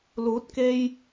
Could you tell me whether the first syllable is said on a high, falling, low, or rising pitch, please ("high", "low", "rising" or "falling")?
rising